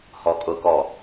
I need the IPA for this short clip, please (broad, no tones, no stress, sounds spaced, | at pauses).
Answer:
h ɔ kʼ ʊ k ɔ